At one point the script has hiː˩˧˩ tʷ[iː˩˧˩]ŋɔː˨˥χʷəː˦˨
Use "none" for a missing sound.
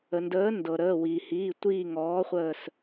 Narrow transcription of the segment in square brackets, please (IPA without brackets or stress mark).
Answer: iː˦˨